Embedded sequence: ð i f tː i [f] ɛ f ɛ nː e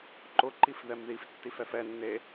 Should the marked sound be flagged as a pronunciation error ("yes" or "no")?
no